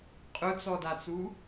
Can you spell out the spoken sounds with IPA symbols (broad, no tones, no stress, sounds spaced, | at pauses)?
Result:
qʼ ʊ t͡s ɔ d a t͡s u